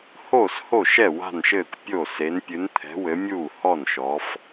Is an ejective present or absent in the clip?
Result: absent